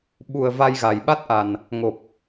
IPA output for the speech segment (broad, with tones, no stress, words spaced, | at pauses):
ɓu˨˩ə̯ va˧jɣa˨˩jɓa˦˥t̚ʔa˨˩n | ŋo˨˩p̚